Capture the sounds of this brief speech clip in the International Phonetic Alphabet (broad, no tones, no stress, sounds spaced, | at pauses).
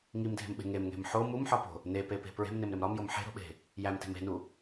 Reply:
ŋ i m dʱ e̤ m ɓ e̤ ŋ e m ŋ e̤ m ħ o m u m ħ ɒ p o̤ | n e p e p e̤ p ɹ e̤ m n e m ɾ e m ɾ ɒ m j o m ħ e̤ ɾ o̤ ɓ e̤ | j æ m t e̤ m e̤ n u